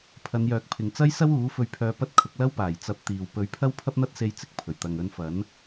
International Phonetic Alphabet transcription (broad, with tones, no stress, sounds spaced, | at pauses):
pʰ ɐ˨˧ n j œː˨ k̚ pʰ ɪ˨ ŋ t͡s ɐ˥ j s ɐ˥ w uː˨˥ f ɵ˧ ɥ pʰ œː˧ p ɐ˥ t̚ kʰ ʊ˨˥ k̚ l ɐ˥ w p aː˨˩ j t͡s ɐ˧ p̚ t̪ iː˨ w p ɵ˨˥ ɥ pʰ ɐ˥ w pʰ ɐ˥ p̚ n̪ ɐ˥ t̚ s e˧ j t͡s ɪ˨ k̚ pʰ ɵ˨˩ ɥ t̪ ɐ˨ ŋ ɵ˧ n f ɐ˨˥ n